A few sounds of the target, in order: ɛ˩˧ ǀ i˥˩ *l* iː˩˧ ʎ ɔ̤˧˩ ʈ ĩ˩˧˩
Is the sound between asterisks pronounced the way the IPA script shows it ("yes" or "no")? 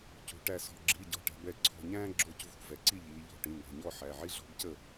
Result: no